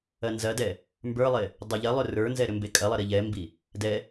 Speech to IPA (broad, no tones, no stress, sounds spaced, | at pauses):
ɐ n z ɐ d ɛ | m b ə˞ lˠ e | dˤ ɐ ʎ ɐ lˠ ʏ r ə˞ n z ɛ ɾ ʏ m b e kʼ ɐ lˠ ɐ ɾ i ʎ ɛ m b i | d ɛ